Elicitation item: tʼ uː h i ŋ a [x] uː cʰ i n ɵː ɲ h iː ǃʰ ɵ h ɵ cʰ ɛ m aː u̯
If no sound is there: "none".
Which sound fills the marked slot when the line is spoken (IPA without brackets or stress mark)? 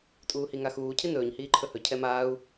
x